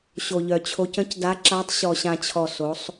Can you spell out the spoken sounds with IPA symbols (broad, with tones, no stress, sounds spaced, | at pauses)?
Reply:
ɕ o˨ ʎ œ˨ t͡ɕʰ o˨˦ c ə̃˨˦ c d a˨˦ ǁ a˨˦ tˤ ɕ ɔ˨ ɕ ã˨ t͡ɕʰ ɔ˨ s o˨˦ sˤ